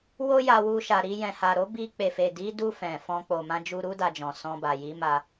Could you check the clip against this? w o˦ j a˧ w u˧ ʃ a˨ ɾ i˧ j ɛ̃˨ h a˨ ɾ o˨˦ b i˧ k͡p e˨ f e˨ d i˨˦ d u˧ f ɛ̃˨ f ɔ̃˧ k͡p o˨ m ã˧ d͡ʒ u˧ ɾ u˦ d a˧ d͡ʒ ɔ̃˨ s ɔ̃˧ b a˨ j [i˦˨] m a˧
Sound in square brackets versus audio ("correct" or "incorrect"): incorrect